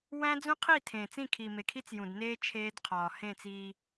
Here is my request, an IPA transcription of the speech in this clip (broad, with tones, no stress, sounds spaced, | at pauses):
w æ̃˦ d͡z ũ˦ qʰ i˦˨ tʰ ẽ˨ t͡s ĩ˦˨ kʰ i˨ m e˨ kʰ i˦ t͡s j ũ˨ d n eː˦ t͡ʃʰ eː˦ d qʰ ɒː˨ h ẽ˦˨ t͡s iː˦